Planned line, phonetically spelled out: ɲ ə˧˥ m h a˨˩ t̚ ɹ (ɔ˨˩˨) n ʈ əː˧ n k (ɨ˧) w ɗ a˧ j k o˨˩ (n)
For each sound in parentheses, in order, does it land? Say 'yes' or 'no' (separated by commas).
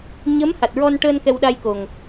no, no, no